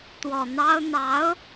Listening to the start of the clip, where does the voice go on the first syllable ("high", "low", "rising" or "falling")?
low